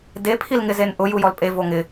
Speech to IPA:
de pʰilŋɪzenʔʊ jujɔlpʼe voŋɪ

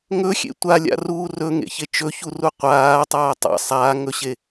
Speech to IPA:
ŋɵxʲḛ tʷalʲa̰ruː rɵŋḛçe t͡ʃɵçuru qʷaːtˤaː tˤa̰ sˤaːŋɵɕe

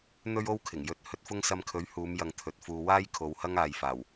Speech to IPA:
n̪ɵ˥ɥo˥wkʰɪ˨˩ŋ jɵ˧t̚ hɵ˧t̚fʊ˥ŋ sɐ˧mkʰɵ˨˥ɥhuː˨˧mjɐ˨ŋ t̪ʰɵ˨˥t̚fuː˧ waː˥j kʰo˨˧whɐ˥ŋaː˨jfaː˨˩w

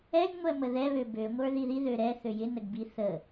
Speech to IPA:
ɛɡ ŋʷɛməðɛβø bø ŋʷə˞ðiði ðøɾɛ θøjɪnəɡbi θə

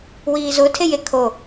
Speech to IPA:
wiːzʊtʰeje kʰo

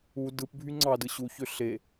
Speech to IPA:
u dɯpbʱy ŋ͡ǀɑdɯ ɕuçø ɬe

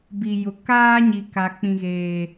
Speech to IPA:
bi˨jʊ˨ kaː˦ɲi˨ka˨ k͡pĩ˦ɣeː˦

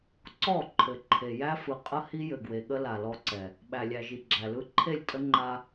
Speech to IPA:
ǀɔ˦˨ ǃʰɘ˨ǃʰe˨ jæ˦fɯ˨qʼə˦ hi˦jɘ˨ɡwe˨ɠə˦ la˨lɔ˦ǀɛ˨ | ɓæ˨lʲæ˨ʒi˨ ɡ͡ǁæ˨lɯ˦ ǃʰe˦˨lʲtʼə˦ ŋ͡ǃa˦

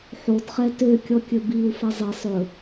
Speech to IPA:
ħodχɛ tøkʲɔ kʲɵbiu̯fɛ zˤesˤ ɵ

